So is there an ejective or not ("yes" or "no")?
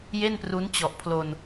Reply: no